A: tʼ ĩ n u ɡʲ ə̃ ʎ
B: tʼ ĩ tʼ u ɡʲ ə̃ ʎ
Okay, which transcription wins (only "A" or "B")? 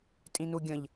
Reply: A